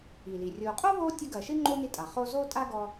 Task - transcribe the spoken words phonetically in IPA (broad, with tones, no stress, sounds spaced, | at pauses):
i˩ l i˩ rʲ oː˨ qʼ o˥ β oː˦ tʲ ɐ˦ ɡ ɐː˨ ʃ ɨ˥ ŋ͡ǃ oː˥ n i˦ tʼ a˩ χ oː˦ z oː˥ tʼ aː˥ ɡ ɔ˥